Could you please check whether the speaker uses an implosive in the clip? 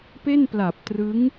no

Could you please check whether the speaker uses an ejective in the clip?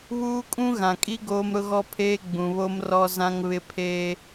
yes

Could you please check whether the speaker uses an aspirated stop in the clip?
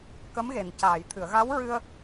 yes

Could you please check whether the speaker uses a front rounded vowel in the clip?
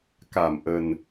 no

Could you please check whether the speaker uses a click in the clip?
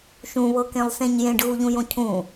no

